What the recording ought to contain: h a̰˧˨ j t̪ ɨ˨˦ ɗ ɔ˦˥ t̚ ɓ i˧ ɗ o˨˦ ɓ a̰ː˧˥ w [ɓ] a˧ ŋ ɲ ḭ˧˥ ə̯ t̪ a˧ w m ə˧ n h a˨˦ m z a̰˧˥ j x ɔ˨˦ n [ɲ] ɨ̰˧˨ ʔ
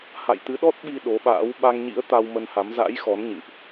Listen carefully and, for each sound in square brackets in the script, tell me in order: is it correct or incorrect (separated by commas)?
correct, correct